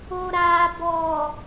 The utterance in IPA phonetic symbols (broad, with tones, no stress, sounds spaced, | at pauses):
o˨ ɾ aː˨ b ɔ˨